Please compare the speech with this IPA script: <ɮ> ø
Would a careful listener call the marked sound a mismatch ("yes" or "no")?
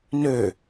yes